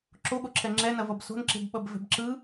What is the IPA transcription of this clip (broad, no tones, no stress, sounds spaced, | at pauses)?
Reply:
ǁ o ɠ o ǁʰ ɛ ŋ͡ǁ ɛ n ɐ v ʌ b s o̤ n ǁ e̤ b ɓ ʌ b v ɛ̤ b ǁ ɯ